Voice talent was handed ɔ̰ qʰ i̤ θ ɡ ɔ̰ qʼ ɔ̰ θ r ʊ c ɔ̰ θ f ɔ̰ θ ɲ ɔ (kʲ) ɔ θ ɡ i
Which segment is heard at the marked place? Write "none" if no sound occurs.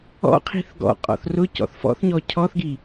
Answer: cʰ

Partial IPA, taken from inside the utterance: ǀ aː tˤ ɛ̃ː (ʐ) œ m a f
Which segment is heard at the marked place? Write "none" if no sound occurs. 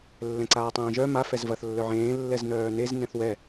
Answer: ʒ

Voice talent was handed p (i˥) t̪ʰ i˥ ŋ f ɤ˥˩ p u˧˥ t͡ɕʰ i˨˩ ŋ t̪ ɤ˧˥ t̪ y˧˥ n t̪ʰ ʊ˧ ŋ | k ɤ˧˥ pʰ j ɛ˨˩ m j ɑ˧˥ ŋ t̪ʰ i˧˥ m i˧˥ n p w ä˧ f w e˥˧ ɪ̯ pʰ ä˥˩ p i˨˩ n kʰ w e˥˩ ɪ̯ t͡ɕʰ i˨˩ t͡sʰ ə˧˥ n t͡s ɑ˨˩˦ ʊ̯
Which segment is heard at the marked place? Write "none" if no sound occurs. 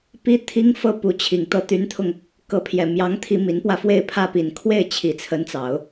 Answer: i˥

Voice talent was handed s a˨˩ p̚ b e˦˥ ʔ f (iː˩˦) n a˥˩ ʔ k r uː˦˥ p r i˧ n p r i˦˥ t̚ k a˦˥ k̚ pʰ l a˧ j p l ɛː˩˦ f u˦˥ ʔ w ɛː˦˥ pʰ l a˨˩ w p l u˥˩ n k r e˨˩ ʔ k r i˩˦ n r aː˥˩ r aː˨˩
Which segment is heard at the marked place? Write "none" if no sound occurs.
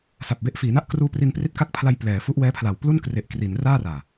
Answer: iː˩˦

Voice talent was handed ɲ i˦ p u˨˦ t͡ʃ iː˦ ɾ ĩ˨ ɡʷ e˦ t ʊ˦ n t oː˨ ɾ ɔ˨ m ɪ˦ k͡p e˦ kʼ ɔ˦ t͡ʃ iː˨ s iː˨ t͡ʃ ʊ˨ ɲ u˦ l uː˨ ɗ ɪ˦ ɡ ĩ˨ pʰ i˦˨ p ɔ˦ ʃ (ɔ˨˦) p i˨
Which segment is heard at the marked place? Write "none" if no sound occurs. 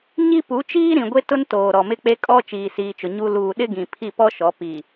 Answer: ɔ˨˦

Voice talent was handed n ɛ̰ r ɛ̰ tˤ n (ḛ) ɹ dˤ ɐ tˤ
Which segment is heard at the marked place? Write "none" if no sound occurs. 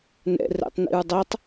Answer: ḭ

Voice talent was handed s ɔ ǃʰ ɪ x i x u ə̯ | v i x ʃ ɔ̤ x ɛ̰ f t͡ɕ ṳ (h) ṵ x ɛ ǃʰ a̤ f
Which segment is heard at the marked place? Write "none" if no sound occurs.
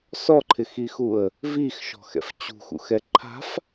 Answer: x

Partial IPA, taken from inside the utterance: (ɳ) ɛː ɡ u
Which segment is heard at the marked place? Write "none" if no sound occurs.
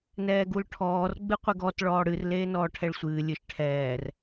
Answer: n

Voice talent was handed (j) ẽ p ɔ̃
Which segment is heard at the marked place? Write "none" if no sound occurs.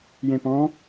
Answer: j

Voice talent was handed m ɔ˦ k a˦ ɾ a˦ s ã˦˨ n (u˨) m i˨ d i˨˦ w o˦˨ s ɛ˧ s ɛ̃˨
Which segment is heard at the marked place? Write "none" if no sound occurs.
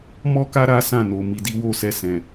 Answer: o˨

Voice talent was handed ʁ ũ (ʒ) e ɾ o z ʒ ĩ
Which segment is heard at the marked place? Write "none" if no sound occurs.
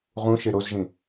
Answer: ʃ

